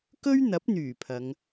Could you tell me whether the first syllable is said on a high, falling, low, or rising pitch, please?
high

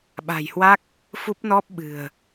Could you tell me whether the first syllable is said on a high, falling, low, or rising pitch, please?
low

